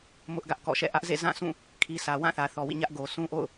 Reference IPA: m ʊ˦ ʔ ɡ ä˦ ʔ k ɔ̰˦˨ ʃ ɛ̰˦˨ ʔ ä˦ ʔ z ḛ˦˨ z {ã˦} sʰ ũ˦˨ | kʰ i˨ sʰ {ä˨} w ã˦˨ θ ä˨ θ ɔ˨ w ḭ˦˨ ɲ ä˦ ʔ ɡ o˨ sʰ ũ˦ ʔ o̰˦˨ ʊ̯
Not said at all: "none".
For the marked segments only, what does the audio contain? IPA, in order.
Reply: ã˦˨, ä˨

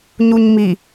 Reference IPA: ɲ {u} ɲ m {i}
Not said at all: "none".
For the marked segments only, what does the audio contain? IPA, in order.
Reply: u, i

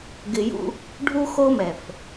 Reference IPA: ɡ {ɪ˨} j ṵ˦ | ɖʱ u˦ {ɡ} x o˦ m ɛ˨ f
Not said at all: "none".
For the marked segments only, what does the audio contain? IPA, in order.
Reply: ɪ˨, none

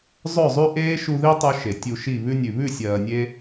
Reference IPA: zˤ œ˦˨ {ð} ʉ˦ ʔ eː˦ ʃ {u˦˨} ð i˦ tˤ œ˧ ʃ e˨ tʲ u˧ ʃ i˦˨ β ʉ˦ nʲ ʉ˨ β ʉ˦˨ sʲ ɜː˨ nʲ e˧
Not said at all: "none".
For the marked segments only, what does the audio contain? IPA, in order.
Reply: zˤ, u˧

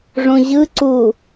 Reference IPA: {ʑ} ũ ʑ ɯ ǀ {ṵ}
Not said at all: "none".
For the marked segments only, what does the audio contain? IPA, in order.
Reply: ʐ, u

